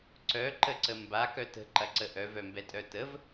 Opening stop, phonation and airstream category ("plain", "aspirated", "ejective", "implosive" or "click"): click